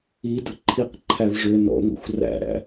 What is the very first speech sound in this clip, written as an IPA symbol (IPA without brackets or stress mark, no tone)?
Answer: i